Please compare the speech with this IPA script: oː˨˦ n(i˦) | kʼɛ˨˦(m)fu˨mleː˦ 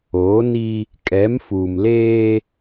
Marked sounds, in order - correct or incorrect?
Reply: correct, correct

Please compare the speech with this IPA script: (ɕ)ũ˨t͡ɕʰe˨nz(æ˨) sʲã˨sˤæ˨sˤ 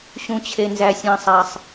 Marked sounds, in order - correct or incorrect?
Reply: correct, correct

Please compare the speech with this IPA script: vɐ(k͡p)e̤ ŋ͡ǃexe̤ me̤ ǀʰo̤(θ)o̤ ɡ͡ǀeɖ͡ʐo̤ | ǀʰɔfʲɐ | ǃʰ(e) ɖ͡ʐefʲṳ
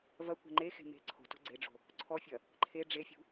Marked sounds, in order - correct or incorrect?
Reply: incorrect: kʷ, incorrect: t, correct

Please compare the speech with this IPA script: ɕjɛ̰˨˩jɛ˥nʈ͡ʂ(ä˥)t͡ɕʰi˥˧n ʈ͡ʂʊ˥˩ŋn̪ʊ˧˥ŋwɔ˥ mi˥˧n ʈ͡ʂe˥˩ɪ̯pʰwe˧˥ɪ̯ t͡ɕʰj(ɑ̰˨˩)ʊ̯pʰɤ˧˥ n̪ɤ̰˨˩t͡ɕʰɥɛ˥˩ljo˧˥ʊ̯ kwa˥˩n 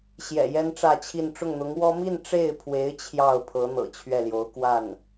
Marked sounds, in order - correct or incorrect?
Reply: incorrect: ä˥˧, incorrect: ɑ˥˩

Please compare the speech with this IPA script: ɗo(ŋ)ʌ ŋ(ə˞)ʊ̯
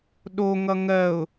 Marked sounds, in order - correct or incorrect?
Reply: correct, incorrect: ɜ

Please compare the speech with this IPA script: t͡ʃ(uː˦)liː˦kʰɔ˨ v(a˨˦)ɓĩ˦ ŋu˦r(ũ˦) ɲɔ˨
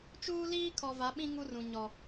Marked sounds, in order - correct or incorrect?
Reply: correct, correct, incorrect: ũ˨

